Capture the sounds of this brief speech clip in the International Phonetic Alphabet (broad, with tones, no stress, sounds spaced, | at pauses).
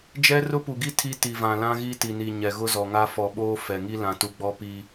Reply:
d͡ʒ ɛ˦ r ʊ˦ p u˨ ɡ i˦ tʰ i˦ t i˨ v ã˨ l ã˦ ɣ i˦ t i˨ n i˨ ɲ ɛ˨ ɣ ʊ˦ z ɔ˨ ŋ a˦ f ɔ˨ ɓ oː˦ f ɛ˨ ŋ i˦ l ã˨ t u˨ ɡ͡b ɔ˦ p i˦